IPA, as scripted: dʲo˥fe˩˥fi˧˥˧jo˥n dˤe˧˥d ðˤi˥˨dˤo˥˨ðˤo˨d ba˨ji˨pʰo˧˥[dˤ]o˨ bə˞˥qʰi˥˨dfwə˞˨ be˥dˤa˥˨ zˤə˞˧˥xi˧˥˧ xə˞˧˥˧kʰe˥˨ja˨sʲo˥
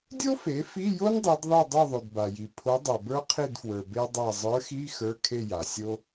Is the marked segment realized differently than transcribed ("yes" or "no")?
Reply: no